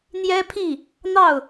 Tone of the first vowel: high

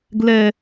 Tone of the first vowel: high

